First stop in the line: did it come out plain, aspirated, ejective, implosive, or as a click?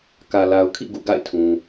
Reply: plain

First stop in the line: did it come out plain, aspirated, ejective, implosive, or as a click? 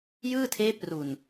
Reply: aspirated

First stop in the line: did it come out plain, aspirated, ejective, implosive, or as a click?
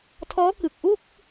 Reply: aspirated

